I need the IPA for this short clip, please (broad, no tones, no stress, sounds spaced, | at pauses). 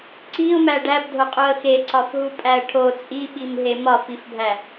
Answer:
ǀ i ʊ̯ m æ ɖ æ b dʱ o qʼ o ə̯ x e ǀ ɒ f ɦ u pʼ æ ə̯ ʈʰ o t͡sʼ i ɓ i m ɦ e m ɒ f i f bʱ æ